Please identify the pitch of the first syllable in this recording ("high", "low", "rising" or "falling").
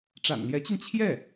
low